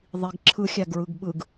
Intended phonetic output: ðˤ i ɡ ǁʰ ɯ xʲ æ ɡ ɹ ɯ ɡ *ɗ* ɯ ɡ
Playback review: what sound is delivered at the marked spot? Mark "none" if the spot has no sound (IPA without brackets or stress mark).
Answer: ɓ